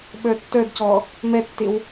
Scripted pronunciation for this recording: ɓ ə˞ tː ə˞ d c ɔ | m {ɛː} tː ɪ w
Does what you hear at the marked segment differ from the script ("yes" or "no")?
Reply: yes